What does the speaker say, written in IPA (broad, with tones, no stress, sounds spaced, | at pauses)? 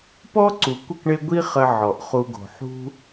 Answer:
p ɔ˦ ǀ u˨ kʷ ə˦˨ k ɳ e˦ ɡʷ i˦ χ ə˧ ʕ ɔ˨ ʔ χ u˧ ɡ o̤˨ ħ ṳ˦